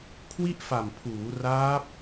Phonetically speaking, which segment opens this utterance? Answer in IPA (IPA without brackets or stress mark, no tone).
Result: kʰ